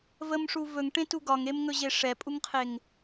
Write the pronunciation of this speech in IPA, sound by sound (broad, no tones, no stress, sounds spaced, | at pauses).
v ə m ʂ u v ɵ ŋ ʈ ẽ t u ɡ ɒ ŋ e m ŋ ɵ ʑ e ʂ ɛ pʼ u ŋ qʰ e ŋ